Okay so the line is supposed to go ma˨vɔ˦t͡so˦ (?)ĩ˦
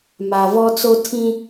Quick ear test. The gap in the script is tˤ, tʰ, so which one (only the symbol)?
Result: tʰ